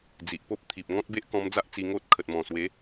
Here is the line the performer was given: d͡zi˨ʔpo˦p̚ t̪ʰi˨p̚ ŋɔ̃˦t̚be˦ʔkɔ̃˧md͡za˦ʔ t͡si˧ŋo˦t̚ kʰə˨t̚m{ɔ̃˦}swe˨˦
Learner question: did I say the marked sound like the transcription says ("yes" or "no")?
no